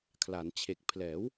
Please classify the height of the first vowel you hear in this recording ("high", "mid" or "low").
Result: low